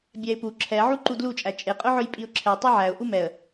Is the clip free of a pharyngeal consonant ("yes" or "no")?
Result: no